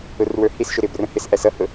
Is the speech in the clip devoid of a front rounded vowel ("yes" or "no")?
yes